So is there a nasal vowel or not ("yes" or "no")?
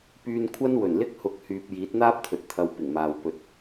no